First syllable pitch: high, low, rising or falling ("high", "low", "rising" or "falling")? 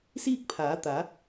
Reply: falling